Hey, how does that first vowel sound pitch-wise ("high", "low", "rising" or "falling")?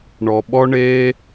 low